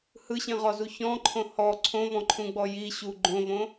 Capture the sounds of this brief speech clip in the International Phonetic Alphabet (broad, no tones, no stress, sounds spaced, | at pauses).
h ɯ ɕ ĩ ʁ ɔ z u ç ɔ̃ ǃʰ õ h ɔ ǀʰ õ v ɔ̃ ǃʰ ũ ɡ͡b ɔ j i ɕ u ɡ͡ǃ õ v õ